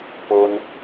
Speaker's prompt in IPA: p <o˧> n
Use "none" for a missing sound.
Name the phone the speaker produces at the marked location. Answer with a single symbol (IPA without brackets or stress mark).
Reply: o˧